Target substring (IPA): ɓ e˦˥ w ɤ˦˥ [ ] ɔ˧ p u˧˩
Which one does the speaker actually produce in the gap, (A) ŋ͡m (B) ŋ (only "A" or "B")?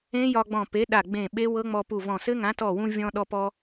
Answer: A